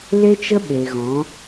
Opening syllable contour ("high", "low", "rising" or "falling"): high